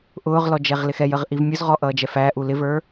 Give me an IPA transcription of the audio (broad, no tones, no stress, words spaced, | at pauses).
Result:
ʔʊːʁlɔ d͡ʒɛʁlɪxɛjəʁ ʔivmʲʊzʁɔ ʔʌːd͡ʒɛfæːʔu lɪvə˞